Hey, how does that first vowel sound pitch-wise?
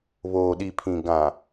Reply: low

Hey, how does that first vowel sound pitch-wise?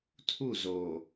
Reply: falling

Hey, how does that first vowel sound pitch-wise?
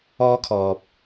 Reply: high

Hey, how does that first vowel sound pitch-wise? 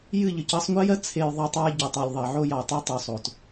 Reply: falling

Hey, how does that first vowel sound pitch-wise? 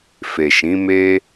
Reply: low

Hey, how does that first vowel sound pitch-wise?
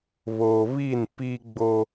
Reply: low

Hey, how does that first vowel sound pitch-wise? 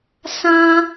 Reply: high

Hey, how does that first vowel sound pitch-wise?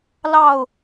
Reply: falling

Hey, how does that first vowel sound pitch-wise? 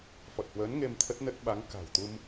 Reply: low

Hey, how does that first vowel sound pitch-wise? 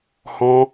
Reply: high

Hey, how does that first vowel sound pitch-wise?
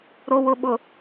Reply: low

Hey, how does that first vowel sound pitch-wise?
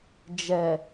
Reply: low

